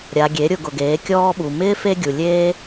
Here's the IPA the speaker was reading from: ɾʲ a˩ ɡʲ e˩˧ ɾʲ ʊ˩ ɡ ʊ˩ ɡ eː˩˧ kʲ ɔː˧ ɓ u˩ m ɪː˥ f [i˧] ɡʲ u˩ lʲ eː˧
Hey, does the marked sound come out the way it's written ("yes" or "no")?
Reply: no